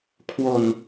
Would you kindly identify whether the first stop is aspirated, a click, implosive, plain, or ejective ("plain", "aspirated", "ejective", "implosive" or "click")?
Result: aspirated